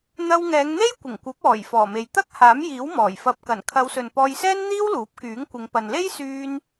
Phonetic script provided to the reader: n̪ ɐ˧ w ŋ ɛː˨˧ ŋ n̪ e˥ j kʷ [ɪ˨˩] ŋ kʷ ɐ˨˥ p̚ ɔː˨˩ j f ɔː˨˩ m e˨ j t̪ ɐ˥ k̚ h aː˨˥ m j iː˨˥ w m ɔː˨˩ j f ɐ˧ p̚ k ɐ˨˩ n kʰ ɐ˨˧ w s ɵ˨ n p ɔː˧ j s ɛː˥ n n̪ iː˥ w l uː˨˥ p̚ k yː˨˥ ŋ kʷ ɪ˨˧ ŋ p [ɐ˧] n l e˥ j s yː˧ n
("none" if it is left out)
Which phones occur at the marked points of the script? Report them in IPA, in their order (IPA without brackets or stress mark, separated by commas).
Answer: ɪ˨˩, ɐ˨